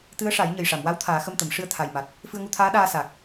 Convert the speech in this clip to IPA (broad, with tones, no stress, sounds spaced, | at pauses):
t̪ ɨ˧˥ ə̯ ʂ a˨˩˦ j ɲ ə˨˩ j ʂ a˨˩˨ m w a˧˥ w t̪ʰ aː˨˩˦ x ə˧ m t̪ ə˨˩˨ m ʂ ɨ˧ ə̯ t̪ʰ a˨˩ j m a˨˩ t̚ | f ɨ˧ ə̯ ŋ u˧ t̪ʰ aː˧˥ ɗ aː˧ s a˨˩ k̚